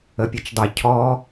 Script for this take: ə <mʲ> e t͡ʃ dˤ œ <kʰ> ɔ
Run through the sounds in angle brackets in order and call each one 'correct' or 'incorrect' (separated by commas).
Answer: incorrect, incorrect